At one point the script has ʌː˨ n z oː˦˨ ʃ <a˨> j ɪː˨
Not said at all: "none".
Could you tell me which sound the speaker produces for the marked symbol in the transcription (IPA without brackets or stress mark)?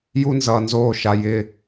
a˨